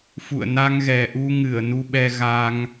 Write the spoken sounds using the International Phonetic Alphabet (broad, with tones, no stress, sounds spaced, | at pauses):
f ṵ˧˨ ə̯ n a˧ ŋ ɣ ɛ˨˩ ʔ u˧ ŋ ɨ˧˩ ə̯ n u˧ ɓ ɛ˧ ɣ a˧ ŋ